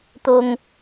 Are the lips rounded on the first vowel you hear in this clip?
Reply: yes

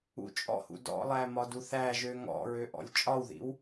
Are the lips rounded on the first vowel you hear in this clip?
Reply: yes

